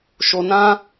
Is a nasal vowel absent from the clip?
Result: no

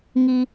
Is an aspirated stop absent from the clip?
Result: yes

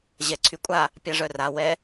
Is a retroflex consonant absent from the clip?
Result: no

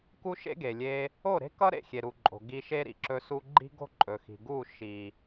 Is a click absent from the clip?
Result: no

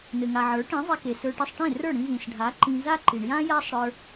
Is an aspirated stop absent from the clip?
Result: yes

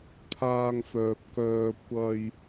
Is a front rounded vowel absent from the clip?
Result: no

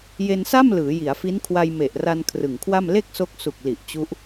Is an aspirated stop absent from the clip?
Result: no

